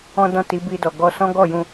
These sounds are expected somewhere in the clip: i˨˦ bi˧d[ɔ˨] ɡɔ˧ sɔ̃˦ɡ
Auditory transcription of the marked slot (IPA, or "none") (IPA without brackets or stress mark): ɔ˨